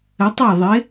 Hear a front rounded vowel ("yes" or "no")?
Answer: no